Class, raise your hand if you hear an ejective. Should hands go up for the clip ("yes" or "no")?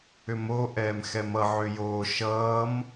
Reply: no